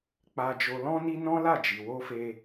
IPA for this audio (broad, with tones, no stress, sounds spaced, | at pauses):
k͡p a˧ d͡ʒ o˧ l ɔ̃˦ n i˦ n ɔ̃˦ l a˦˨ d͡ʒ i˨ w o˧ f e˧